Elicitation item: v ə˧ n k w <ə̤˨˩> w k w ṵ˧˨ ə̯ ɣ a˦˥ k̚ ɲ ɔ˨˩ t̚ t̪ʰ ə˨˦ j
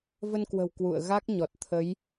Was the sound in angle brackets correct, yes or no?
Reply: yes